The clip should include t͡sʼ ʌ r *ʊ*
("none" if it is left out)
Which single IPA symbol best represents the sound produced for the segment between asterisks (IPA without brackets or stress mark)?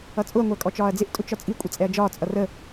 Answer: ə